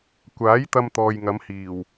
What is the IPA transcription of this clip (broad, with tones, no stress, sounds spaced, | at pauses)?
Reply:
kʷ aː˨˥ j t̪ ɐ˧ m t̪ ɔː˨ j ŋ ɐ˨˧ m h iː˨˩ w